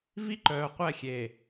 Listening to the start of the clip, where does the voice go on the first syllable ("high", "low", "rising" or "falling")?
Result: high